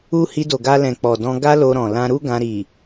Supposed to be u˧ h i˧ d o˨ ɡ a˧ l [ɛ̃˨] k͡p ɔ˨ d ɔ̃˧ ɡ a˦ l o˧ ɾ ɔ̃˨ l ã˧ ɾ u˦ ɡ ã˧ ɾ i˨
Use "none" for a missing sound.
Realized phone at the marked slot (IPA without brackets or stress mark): ɛ̃˨